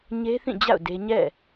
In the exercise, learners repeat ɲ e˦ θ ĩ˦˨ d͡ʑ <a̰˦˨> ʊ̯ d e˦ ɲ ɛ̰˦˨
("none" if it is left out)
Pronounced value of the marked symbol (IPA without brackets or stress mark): a̰˦˨